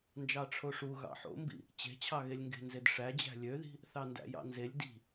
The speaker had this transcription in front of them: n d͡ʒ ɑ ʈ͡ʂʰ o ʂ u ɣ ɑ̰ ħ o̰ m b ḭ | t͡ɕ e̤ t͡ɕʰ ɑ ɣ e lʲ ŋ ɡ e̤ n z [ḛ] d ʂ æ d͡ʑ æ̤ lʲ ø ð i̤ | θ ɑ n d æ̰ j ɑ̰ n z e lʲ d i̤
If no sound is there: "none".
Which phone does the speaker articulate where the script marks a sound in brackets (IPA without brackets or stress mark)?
e